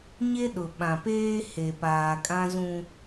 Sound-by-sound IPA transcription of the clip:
ɲ e˦ ɗ ʊ˨ ɓ ã˨ p eː˦ h e˨ p aː˨ kʼ ã˦ z ũ˦

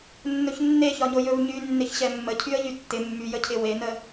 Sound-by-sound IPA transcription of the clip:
nː ɵ ç nː e ç ɒ ɲ o j ɵ v ɲ y nː ɪ ç ɕ ɛ mː ə cʰ y ə̯ ʎ y tː ɪ mː y j ə cʰ ɪ w e n ə

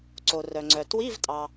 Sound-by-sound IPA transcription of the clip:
ǀ o˩ r œ˩ ŋ͡ǀ œ˩ t w i˧˥˧ v tʼ ɑ˩

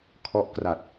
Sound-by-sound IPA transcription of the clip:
kʰ ɔ˦˥ ʔ k r a˨˩ t̚

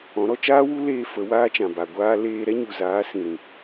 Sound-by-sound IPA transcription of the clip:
ɔ̃˨˦ ɾ ɔ˧ t͡ʃ aː˦ w u˦ l eː˦ f ə˨˦ w aː˦ t͡ʃ ã˨ b a˨ ɡʷ aː˧ l eː˧ ɾ ɛ˦ ɲ u˨ z aː˨˦ s ĩ˨ ɾ ĩ˨

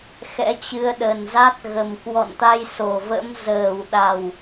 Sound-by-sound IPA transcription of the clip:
x ɛ̰˧˥ t͡ɕ ɨ˧ ə̯ ɗ ə˨˩ n z a˦˥ t̚ ɣ ə˨˩ m k w ɔ̰˧˨ n t̪ a˧ j s o˨˩ v ə̰˧˥ m z əː˨˩ w ɗ a˨˩ w

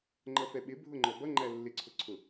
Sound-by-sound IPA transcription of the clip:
ŋ͡ǃ ʌ f ɛ ɓ ɪ bʱ ʊ ŋ͡ǃ ɔ b ʌ ŋ͡ǃ æ lː ɪ ǀʰ ʊ ǀʰ ʊ

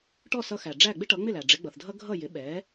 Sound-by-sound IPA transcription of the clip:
ʈ ɔ˥˩ s ʌ˧ x æ˩ ɖ͡ʐ æ˥˩ ɡ͡b ɪ˥ ʈ ʌ˩˥ ŋ͡m ɪ˥˩ l æ˩ ɖ͡ʐ ɪ˩˥ ɡ͡b ʌ˩ θ dʱ ʌ˥ ɡʱ ʌ˥˩ j ɪ˩˥ ɓ ɛ˩˥

